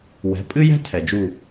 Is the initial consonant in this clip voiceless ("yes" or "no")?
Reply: no